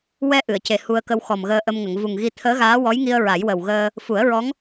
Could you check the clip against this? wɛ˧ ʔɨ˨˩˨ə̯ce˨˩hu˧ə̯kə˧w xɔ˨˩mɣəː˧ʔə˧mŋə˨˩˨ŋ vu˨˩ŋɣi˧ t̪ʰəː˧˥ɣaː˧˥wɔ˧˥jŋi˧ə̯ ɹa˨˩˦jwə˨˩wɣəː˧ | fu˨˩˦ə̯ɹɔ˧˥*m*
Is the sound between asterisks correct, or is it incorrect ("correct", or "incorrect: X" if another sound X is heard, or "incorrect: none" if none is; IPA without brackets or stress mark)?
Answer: incorrect: ŋ